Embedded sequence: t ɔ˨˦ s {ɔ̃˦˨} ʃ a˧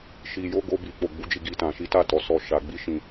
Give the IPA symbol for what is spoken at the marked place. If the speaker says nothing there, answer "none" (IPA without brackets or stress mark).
ɔ˦˨